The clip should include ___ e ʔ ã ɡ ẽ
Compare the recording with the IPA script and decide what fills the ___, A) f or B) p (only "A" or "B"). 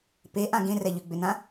B